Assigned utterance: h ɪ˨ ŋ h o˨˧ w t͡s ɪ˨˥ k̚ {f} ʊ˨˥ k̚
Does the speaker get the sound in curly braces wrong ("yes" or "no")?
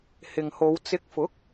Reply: no